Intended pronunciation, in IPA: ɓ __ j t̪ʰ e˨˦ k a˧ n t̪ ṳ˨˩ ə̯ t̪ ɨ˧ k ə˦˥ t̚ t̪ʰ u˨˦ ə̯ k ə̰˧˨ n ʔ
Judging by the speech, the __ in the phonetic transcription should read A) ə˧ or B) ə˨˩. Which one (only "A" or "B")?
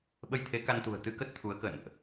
A